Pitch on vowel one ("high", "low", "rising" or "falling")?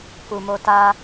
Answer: low